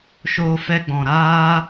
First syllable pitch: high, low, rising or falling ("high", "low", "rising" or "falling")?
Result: high